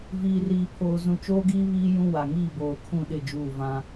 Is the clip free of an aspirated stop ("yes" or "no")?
no